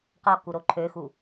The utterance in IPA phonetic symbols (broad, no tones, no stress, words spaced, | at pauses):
qɔ kuɾoǃʰøxu